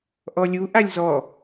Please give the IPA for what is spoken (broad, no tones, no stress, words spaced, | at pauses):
ʔɔlʲu ʔalʲzɔ